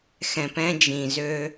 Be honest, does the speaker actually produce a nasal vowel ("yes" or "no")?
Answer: yes